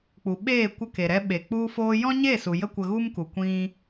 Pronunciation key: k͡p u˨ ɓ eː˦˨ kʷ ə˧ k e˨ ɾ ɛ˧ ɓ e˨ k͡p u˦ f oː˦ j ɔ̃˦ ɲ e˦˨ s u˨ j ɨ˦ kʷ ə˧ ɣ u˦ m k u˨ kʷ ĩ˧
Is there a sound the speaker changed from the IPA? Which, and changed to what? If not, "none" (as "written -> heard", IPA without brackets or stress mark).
ɨ˦ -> ə˦